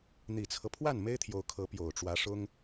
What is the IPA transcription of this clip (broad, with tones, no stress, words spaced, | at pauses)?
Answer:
n̪i˨˩t͡sʰɤ˦pʰwa˥˩n me˥ɪ̯t̪ʰjo˧˥ʊ̯ kʰɤ˧˥pjo˨˩ʊ̯ʈ͡ʂwä˧˥ʂʊ˥ŋ